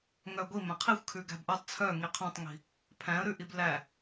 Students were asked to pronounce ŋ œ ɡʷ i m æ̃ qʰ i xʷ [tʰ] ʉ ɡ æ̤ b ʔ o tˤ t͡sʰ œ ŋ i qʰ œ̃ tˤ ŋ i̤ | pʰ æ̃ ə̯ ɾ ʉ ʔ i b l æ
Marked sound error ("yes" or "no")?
yes